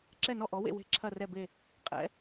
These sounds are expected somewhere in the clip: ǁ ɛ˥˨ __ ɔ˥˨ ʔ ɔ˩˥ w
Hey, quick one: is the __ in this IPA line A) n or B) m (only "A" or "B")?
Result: A